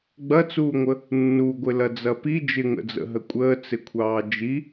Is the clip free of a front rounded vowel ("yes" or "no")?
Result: yes